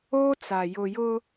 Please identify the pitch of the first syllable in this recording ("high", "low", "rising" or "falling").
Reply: high